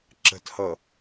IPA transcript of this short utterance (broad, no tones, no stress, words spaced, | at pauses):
ǁə̤thʌ